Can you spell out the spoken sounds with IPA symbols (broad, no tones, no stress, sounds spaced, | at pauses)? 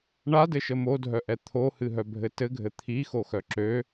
ɳ a d ɘ ʃ ə m o dʱ œ ʔ ɛ t̪ʰ o h ɨ ɦ œ bʱ ɘ t ɘ ɡʱ ɘ t̪ʰ i x o x œ ǁ ø